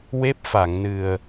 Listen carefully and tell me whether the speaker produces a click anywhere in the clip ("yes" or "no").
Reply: no